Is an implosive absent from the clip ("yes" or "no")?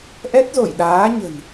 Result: no